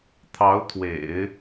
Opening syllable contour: rising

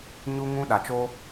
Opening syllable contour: high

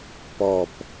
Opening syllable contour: low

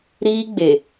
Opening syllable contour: high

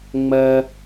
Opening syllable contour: high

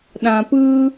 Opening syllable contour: low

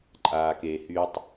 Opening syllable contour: low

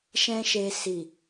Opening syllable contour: high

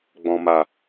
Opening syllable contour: low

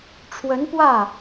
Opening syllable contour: rising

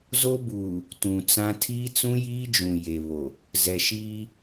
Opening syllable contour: high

